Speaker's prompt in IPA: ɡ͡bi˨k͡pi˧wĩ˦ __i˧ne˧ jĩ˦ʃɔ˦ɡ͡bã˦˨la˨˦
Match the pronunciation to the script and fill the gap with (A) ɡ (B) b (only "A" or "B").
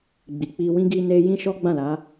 A